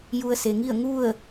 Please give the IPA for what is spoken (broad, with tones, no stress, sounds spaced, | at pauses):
j u˧ ə̯ s e˩ ŋ i˥˨ ə̯ ŋ u˥˨ ə̯